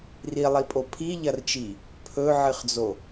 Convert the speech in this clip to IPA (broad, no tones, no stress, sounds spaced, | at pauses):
r i lˠ i pʼ o pʰ i ʎ ɐ r t͡ʃ i | pʰ ɵ ʕ ɨ χ d͡z o